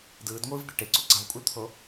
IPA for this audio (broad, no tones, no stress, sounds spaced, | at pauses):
d ɯː d ŋʷ ɯː v d̪ e ʈ e ǀ u ǀ ɑ̤ v kʷʼ ɯ l t̪ʰ o